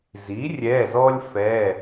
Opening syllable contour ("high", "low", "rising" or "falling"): rising